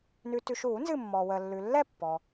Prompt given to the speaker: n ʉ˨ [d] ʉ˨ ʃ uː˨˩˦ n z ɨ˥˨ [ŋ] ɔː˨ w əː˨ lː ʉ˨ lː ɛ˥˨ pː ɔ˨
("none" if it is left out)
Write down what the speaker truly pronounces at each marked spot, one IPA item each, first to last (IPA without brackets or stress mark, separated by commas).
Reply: t, mː